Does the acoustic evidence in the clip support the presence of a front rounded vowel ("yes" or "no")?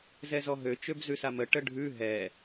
yes